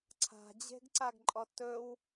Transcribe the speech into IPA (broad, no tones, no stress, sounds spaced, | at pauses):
ǀʰ a̤ d͡ʑ e̤ ɡ ǀ a ɡ ǃʼ ɔ t ɵ w